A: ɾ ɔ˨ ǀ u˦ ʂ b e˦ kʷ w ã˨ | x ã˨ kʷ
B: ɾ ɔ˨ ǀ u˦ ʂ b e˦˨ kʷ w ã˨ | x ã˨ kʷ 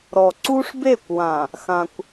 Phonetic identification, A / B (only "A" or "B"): B